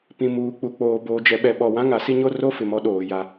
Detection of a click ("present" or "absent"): absent